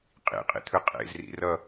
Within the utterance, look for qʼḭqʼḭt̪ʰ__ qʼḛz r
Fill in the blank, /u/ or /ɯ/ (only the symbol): ɯ